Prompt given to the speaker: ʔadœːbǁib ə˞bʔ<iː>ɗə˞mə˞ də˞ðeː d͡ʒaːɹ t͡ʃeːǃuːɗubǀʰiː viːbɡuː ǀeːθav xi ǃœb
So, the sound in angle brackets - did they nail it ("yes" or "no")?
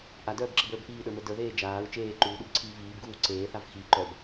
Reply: yes